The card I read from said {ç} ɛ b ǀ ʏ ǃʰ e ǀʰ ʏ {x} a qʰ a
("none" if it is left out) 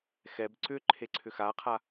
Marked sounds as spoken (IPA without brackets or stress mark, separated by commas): x, x